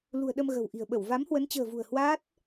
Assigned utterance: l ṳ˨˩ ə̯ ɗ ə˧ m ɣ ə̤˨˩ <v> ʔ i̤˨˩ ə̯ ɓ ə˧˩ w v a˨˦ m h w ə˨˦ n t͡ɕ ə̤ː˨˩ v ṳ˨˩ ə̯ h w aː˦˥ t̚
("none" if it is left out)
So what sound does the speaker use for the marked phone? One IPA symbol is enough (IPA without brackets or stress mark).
w